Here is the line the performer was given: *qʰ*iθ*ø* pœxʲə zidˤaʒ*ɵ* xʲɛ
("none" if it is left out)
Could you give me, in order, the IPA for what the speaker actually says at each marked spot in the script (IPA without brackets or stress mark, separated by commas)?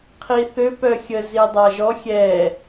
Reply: qʰ, ø, ɔ